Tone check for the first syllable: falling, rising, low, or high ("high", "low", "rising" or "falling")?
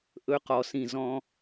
high